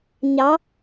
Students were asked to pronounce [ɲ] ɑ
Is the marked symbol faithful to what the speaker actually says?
yes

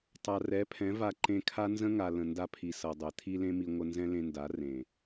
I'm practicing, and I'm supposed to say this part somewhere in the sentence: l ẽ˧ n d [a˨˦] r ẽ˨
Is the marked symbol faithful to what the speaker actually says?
yes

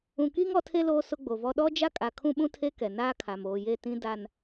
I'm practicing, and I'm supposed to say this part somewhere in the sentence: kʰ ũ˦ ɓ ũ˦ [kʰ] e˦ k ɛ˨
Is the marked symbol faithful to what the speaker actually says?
no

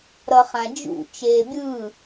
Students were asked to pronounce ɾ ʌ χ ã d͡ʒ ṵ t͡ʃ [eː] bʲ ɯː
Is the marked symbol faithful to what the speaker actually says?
yes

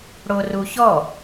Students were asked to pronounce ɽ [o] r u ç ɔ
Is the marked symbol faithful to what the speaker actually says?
yes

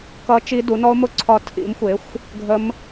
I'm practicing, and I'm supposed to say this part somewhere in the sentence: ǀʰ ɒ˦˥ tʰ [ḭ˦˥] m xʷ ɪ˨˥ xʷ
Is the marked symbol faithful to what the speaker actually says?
no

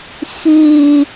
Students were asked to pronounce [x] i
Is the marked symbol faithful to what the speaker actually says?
yes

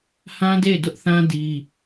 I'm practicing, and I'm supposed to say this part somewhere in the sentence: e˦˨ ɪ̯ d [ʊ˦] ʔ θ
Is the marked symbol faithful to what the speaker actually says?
yes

